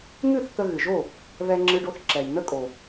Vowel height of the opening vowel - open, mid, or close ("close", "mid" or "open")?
close